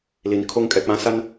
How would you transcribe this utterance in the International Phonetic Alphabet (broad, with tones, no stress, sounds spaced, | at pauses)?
l i˨ n kʰ o˦ ŋ kʼ ɛ˨ k͡p ã˦ s a˦ n